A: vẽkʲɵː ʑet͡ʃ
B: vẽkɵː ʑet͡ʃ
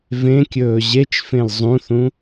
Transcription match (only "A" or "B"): A